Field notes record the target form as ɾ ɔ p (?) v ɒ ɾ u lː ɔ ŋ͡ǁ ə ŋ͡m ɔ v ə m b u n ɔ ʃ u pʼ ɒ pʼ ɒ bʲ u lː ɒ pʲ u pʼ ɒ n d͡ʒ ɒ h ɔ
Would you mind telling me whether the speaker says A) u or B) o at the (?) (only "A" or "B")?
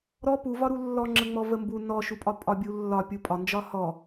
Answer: A